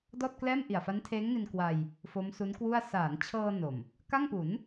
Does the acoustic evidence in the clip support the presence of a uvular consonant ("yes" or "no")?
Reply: no